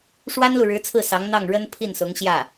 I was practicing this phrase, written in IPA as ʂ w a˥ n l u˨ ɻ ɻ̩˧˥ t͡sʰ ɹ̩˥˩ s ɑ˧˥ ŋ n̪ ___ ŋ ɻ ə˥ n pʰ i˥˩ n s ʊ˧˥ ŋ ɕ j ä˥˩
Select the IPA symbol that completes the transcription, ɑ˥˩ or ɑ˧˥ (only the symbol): ɑ˥˩